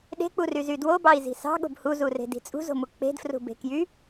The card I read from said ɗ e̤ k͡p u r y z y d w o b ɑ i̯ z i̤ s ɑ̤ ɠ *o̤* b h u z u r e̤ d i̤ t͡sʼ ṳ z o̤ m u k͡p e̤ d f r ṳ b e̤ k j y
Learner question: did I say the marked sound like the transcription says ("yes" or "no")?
yes